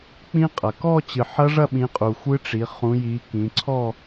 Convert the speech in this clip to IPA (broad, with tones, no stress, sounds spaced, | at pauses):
k͡p ĩ˦˥ qʼ ɐ˨ k ɔ˥˧ t͡ɕ ɨ˨ ħ ɐ˦˥ ʐ ɐ˥˧ ɓ ĩ˨˦ qʼ u˨ xʷ ɨ˦˥ ʈ͡ʂ i˨˦ χ ũ˨˦ j i˨˦ k ĩ˨˦ ǀʰ ɔ˥˧